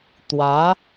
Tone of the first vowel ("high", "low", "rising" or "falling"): rising